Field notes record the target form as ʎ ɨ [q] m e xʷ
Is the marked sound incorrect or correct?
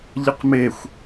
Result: correct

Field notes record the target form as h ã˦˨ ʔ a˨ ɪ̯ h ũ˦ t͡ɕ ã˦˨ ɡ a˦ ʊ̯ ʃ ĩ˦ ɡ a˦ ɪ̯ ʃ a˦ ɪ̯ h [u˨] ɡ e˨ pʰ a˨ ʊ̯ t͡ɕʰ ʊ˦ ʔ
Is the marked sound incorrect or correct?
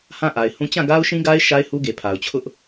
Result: incorrect: u˦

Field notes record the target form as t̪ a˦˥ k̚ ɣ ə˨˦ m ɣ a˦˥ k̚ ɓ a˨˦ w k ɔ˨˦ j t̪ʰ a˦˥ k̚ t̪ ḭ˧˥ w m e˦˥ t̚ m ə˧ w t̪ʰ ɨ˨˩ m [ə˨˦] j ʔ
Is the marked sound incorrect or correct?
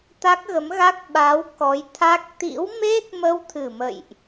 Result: incorrect: ə̰˧˨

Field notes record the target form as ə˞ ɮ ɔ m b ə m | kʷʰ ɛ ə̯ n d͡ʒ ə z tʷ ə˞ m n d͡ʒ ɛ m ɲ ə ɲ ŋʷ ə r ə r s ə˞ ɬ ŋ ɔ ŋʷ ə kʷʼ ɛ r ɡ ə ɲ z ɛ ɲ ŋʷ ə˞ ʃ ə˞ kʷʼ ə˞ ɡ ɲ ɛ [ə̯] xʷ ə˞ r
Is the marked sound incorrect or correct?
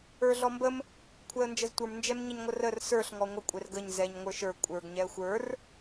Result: correct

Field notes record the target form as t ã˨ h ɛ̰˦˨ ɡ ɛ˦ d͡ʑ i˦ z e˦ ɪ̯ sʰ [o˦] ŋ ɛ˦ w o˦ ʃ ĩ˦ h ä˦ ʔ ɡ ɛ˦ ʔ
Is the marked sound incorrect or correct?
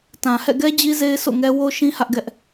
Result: incorrect: o̰˦˨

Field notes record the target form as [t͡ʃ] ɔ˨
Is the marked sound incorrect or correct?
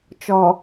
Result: correct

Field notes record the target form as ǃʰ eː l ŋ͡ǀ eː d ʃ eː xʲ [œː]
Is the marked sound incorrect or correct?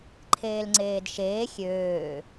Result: incorrect: øː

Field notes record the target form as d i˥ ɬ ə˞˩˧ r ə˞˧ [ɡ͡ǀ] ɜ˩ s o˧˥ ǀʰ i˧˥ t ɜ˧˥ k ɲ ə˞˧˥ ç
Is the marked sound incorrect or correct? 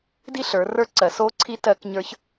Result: incorrect: ǀ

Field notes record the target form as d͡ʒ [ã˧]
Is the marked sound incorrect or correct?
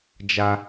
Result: incorrect: a˧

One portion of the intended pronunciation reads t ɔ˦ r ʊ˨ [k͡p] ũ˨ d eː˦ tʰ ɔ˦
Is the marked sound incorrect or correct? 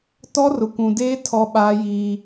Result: incorrect: kʷ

